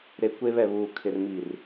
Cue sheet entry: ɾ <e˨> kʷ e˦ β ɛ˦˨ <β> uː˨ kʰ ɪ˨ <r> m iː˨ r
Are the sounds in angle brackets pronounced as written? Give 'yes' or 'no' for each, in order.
yes, yes, yes

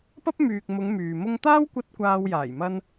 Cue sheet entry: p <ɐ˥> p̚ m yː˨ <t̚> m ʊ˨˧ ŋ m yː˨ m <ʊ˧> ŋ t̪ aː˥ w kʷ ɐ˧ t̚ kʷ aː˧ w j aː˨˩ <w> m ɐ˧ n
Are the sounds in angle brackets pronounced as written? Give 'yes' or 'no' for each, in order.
yes, no, yes, no

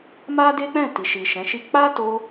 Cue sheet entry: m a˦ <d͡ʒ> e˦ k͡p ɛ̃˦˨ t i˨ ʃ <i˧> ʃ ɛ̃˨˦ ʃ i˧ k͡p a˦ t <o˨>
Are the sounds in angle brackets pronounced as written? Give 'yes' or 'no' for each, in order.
no, no, no

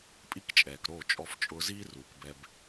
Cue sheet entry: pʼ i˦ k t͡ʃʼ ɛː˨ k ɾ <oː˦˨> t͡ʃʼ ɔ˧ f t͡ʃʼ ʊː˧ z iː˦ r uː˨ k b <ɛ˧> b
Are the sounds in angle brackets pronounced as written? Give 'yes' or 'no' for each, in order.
yes, yes

